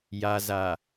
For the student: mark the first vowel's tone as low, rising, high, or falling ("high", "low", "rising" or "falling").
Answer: low